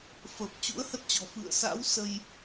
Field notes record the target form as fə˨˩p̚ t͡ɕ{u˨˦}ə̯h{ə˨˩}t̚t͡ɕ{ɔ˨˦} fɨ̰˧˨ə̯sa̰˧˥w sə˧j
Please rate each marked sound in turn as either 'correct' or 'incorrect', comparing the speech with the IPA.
incorrect: ṵ˧˥, incorrect: ə˦˥, incorrect: ɔ̤˨˩

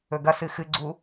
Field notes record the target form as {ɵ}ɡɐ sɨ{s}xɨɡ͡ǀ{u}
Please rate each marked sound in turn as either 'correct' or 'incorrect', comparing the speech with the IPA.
correct, incorrect: none, correct

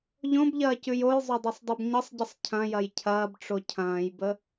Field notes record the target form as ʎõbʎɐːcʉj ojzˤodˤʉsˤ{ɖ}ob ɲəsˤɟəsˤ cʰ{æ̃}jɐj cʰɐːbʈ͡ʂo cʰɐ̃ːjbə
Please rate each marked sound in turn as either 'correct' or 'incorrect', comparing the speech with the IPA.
incorrect: dˤ, incorrect: ɐ̃

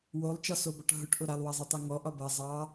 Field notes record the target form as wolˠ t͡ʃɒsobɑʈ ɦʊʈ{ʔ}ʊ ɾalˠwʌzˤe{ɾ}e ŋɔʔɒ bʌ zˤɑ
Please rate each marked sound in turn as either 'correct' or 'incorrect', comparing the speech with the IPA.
correct, incorrect: tˤ

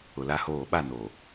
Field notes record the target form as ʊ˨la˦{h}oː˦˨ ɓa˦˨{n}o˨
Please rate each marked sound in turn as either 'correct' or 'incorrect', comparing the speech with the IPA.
correct, correct

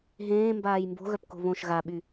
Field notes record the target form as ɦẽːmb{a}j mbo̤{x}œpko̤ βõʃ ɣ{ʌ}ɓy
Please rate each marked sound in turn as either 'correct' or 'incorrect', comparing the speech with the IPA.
incorrect: aː, incorrect: ɣ, incorrect: a

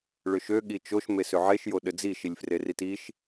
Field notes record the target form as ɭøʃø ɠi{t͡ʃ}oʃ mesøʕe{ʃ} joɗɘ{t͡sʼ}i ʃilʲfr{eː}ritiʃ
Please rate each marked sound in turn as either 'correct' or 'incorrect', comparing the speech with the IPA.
correct, correct, incorrect: d͡z, incorrect: e

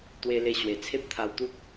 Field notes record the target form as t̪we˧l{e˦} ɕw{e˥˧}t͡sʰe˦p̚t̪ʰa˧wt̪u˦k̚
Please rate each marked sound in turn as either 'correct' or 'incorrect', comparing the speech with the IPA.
incorrect: e˧, incorrect: e˨˩

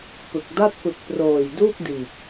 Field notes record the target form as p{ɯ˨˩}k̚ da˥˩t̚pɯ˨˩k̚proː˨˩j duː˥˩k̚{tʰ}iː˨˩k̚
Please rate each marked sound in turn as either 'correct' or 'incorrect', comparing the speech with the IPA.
correct, incorrect: d

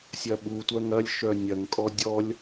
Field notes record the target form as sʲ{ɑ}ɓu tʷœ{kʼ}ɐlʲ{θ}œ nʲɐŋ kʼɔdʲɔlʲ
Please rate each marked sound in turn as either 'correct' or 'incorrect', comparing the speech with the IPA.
incorrect: ɐ, incorrect: ŋ, incorrect: ʃ

